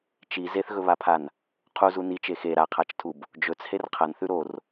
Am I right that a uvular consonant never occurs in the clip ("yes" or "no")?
no